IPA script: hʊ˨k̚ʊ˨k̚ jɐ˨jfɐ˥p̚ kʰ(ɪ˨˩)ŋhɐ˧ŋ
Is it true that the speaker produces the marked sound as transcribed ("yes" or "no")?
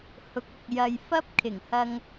yes